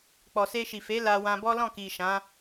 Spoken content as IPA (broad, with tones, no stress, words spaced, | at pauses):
k͡pɔ˨se˧ʃi˨ fe˨˦ la˧wã˧bɔ˦ lɔ̃˦˨ki˨ ʃã˨˦